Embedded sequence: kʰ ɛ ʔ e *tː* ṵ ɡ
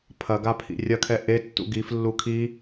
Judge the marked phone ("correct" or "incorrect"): correct